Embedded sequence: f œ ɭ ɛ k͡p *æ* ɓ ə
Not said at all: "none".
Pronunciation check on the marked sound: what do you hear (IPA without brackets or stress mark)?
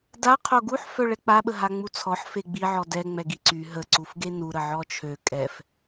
a